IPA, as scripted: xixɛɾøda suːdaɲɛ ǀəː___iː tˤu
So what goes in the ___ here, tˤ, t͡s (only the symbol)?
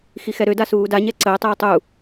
tˤ